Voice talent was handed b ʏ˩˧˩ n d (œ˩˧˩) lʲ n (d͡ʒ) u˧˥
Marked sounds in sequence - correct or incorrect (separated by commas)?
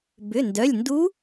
correct, incorrect